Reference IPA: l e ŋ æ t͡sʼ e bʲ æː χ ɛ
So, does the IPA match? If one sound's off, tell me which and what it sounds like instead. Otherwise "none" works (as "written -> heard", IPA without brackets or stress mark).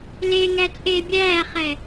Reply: none